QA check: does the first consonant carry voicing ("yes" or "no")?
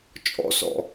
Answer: no